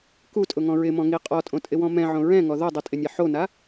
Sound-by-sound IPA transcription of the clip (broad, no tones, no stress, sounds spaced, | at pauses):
k u tʼ ʊ ŋ ɔ̃ ɹ ɪ m ɔ̃ ŋ i qʼ ɔ tʼ õ tʼ ɪ w ɔ̃ m ɛ̃ ʕ õ ɹ ɛ̃ ŋ ɔ ð o dˤ i tʼ ɪ nʲ ɛ ħ o n a